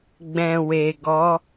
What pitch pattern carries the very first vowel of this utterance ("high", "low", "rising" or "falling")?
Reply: low